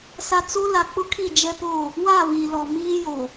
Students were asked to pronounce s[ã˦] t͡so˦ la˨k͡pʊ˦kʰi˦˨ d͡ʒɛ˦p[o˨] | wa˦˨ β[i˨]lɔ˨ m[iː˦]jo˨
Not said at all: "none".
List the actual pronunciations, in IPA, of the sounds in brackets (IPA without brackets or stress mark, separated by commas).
a˦, o˦˨, i˨, iː˦